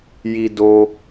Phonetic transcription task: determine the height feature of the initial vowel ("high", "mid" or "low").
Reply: high